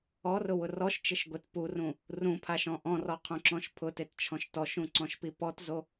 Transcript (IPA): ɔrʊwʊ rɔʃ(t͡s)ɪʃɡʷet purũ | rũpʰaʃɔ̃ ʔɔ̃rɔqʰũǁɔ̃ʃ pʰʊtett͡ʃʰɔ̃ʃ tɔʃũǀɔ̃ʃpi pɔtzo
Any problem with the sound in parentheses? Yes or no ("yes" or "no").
yes